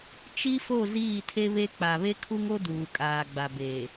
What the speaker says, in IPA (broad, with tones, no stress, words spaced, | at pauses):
t͡ʃi˦fo˦˨ ziː˦˨tʰe˦βe˦ k͡pa˨βe˦kʰu˦ŋo˦ duː˨kʼaː˨ɡ͡ba˨beː˨